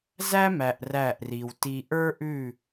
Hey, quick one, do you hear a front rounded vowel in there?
no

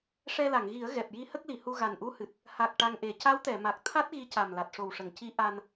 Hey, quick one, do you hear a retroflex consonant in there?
yes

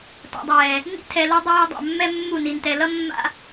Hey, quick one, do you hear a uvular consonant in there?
no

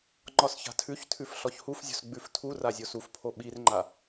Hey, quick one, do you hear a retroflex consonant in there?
no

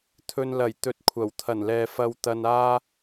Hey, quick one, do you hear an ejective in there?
no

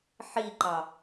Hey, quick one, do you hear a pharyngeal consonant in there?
yes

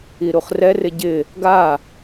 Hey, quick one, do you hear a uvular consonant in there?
yes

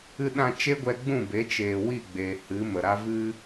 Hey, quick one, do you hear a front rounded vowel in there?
no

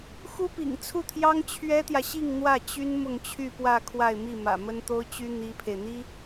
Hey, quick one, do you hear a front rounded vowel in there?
yes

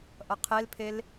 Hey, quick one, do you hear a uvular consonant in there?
yes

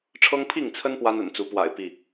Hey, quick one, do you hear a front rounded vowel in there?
no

